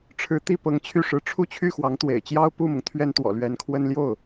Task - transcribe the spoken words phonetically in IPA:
ʈ͡ʂʰ ɻ̩˧˥ t̪ i˥˩ p ɤ˧˥ ŋ t͡ɕʰ y˥˩ ʂ ɻ̩˧˥ ʈ͡ʂʰ u˥˧ t͡ɕʰ y˥˩ x w ɑ˧˥ ŋ t̪ w ḛ˨˩ ɪ̯ t͡ɕ j ɑ˥ ʊ̯ p u˥˩ m ʊ˩ ŋ t̪ʰ ɥ ɛ˥ n t̪ w ɔ̰˨˩ l ɥ ɛ˧˥ n kʰ w ə˥ n l j o˥˩ ʊ̯

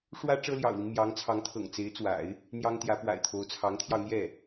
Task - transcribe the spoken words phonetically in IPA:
ʂ w ä˥ ʈ͡ʂ ɤ˥ l j ɑ̰˨˩ ʊ̯ l i˦ n m j ɑ˧˥ ŋ t͡sʰ ɑ˧˥ ŋ t̪ʰ ɤ̰˨˩ ŋ t͡s e˧˥ ɪ̯ t͡s w a̰˨˩˦ ɪ̯ | n̪ j ɑ˥ ŋ t̪ j ä˧˥ p w a̰˨˩ ɪ̯ t̪ʰ o˧˥ ʊ̯ t͡sʰ ɑ˧˥ ŋ t̪ʰ j ɑ˧ ʊ̯ n̪ j ɛ˥˩

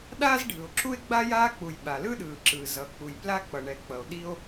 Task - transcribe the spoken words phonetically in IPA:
ɗ aː˥ z ɖʱ ɯ˩ o̯ ǁʰ u˥ e̯ ɡ͡b a˥ j aː˥ k͡p u˩ j ɓ a˩ l ɯ˥ ɗ ɯː˩ ǁ ɯː˩ z ʌ˩ k͡p u˩ j p l a˥ k͡p ʌ˩ ɳ ɛ˩ k͡p ʌ˩ o̯ ɗ i˥ o̯

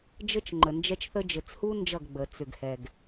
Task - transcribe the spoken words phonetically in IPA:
d͡ʒ ɘ˦ t͡ʃ ŋ͡ǃ ə˨ n d͡ʒ ɛ˦ t͡ʃ θ ə˦ d͡ʒ ɘ˨ t͡s h u˦ n d͡ʒ ʌ˦˨ ɡ ɡ͡b ə˨ t͡s ʏ˨ ɡ h ɛ˨ ɡ

